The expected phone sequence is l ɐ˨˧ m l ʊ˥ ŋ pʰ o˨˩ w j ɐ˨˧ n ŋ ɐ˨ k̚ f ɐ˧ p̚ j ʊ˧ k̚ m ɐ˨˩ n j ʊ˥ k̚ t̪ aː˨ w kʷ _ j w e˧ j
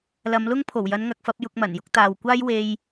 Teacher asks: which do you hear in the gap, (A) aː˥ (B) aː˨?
A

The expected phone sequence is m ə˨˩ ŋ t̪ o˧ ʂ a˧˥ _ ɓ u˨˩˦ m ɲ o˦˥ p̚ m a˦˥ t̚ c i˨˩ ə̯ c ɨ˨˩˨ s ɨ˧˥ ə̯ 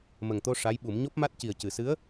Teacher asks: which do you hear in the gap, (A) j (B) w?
A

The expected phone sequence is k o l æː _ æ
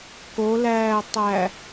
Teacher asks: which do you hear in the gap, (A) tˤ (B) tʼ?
A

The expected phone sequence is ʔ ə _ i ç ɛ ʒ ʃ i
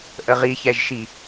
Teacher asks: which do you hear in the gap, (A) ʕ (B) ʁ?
B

